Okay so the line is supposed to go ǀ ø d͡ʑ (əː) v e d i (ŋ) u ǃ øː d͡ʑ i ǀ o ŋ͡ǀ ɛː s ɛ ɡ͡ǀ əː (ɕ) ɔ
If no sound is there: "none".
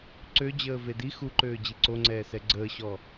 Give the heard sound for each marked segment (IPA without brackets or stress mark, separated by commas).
əː, x, ɕ